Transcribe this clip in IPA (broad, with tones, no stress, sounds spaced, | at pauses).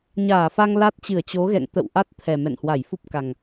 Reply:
ɲ aː˧˩ f a˧ ŋ l a˦˥ t̚ t͡ɕ ɨ˧˩ ə̯ t͡ɕ o˨˦ ɣ ɛ̰˧˨ ŋ t̪ ə̰˧˨ w ʔ a˦˥ t̚ t̪ʰ ɛ˨˩ m ɛ̰˧˨ n h w a˧˩ j f u˦˥ p̚ k a˨˩ ŋ